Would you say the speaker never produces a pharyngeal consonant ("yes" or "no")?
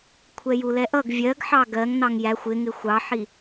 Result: no